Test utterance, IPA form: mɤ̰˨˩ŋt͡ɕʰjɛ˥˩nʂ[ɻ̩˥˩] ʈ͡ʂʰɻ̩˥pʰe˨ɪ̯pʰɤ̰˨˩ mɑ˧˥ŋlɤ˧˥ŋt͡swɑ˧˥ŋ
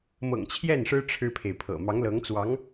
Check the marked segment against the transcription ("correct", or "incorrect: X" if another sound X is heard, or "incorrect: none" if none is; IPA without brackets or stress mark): incorrect: ɻ̩˥